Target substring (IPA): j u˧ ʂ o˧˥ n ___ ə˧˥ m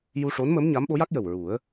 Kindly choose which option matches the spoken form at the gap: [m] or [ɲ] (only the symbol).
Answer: m